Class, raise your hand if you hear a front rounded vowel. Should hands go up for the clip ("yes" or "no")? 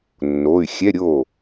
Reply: yes